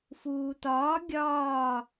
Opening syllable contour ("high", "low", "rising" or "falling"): low